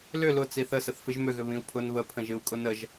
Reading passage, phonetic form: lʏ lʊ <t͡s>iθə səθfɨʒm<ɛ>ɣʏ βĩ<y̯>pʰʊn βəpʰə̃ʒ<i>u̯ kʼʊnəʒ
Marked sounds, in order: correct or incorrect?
correct, incorrect: ʏ, incorrect: u̯, incorrect: ɨ

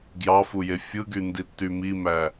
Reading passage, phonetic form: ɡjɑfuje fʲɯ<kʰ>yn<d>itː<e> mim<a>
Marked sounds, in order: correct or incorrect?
incorrect: ɡ, correct, incorrect: y, incorrect: æ

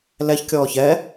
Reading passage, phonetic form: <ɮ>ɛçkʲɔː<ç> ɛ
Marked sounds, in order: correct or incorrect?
incorrect: l, correct

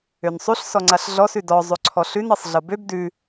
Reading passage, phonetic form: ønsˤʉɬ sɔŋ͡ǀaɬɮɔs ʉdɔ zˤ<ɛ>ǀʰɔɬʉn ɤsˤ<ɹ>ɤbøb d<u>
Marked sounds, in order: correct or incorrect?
incorrect: ø, incorrect: ɮ, incorrect: ʉ

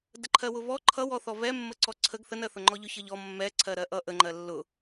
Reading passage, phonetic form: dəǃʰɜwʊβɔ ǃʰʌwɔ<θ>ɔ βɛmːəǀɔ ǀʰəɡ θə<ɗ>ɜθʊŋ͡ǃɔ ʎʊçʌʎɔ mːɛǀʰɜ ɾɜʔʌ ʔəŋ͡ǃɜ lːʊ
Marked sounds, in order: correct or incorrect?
correct, incorrect: n

